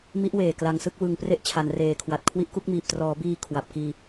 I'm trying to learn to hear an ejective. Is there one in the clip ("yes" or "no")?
no